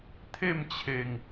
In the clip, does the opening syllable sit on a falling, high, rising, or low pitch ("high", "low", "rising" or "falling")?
falling